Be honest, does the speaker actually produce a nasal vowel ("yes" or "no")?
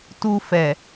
no